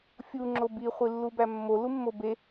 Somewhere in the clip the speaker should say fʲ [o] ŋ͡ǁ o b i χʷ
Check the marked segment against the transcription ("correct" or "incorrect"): incorrect